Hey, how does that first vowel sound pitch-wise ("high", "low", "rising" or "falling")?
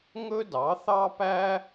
high